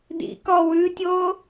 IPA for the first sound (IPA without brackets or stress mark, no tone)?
d